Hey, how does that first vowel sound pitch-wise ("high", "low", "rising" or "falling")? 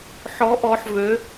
rising